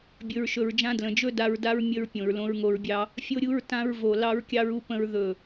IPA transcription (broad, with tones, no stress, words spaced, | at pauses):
bʲɵ˨ɹʃɵ˨ɹd͡ʒã˧dlə̃˨ d͡ʒɵ˦da˧ɹda˦ɹ mʲə˧ɹ pʲõ˨ɹlõ˧ɹŋo˧ɹbʲɑ˦ | fʲo˧ɾʲu˧ɹ tã˧ɹvo˨ lɑ˦ɹkʲɑ˦ɹu˦pə̃˦ɹ ðɵ˦˨